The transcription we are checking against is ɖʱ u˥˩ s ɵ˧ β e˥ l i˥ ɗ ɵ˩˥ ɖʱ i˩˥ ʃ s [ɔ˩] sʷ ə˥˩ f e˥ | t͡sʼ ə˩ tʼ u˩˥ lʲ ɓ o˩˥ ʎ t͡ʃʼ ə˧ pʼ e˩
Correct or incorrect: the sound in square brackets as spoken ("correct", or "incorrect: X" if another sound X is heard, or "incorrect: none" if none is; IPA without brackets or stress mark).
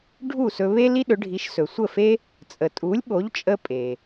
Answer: incorrect: ɵ˩